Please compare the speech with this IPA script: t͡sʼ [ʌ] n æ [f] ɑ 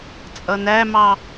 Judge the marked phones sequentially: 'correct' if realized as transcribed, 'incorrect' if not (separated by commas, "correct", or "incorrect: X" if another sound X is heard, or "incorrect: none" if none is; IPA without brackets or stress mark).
correct, incorrect: m